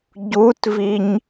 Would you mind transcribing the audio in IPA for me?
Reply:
ɟ u t v i ɲ

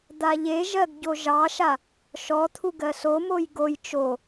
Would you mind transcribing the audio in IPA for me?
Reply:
d̪ a ʎ e ʒ ɜ ɡ ɟ o ʒ ɑ ʃ a | ʃ ɔ t̪ʰ u ɡ ɜ s o m o j ɡ o j t͡ʃ o

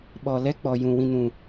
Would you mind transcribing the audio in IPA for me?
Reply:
ɓ ɔ˨ l ɛ˦ k͡p ɔ˨ j ũ˨ w ĩ˧ n ũ˨

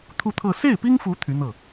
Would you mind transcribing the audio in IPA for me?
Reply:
t̪ʰ u˥˧ t̪ʰ ɤ˥˧ s e˥˩ ɪ̯ p i˥ ŋ f u˧˥ t̪ʰ y˧˥ n̪ ɤ˥˩

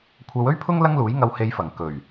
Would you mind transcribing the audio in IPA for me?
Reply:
kʷʰ ɐ˨˧ w ɵ˥ ɥ pʰ ʊ˥ ŋ l ɐ˥ ŋ l uː˨˥ j ŋ ɐ˧ w h e˧ j f ɐ˨˩ ŋ k ɵ˨˩ ɥ

